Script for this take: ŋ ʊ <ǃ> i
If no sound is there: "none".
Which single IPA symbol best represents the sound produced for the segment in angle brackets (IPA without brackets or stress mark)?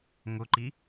ǃ